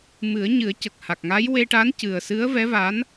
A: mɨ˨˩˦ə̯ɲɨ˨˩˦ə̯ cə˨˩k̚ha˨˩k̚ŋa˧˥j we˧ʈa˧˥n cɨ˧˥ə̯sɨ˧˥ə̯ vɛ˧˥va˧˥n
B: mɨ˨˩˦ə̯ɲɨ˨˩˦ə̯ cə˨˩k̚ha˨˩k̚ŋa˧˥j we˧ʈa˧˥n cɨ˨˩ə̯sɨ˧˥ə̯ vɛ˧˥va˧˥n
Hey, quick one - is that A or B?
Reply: B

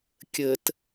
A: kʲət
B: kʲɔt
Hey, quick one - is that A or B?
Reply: A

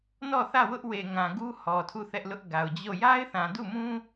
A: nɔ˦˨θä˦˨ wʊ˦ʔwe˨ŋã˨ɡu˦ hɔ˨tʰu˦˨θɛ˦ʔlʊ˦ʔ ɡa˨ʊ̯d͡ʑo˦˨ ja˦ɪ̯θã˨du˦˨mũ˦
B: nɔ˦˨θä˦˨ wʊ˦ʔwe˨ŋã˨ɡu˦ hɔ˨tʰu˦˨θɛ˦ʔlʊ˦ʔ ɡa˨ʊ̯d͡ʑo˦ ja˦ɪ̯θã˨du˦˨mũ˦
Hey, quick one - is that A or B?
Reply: A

